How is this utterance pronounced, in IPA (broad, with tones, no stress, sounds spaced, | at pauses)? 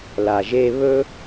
l a˨ ʒ e˧ β ɵ˦